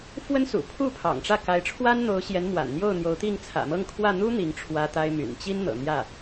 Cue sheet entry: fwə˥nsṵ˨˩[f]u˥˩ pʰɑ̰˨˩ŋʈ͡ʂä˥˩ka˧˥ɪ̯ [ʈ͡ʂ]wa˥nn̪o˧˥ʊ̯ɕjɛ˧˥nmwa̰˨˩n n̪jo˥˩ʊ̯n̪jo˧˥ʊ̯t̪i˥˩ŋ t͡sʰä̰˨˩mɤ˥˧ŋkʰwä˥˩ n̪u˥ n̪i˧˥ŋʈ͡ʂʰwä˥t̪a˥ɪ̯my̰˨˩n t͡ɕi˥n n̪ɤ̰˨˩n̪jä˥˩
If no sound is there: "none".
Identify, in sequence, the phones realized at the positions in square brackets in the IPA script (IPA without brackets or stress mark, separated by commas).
pʰ, ʈ͡ʂʰ